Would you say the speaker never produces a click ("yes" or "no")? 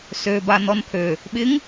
yes